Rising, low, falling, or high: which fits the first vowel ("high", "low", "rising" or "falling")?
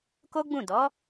high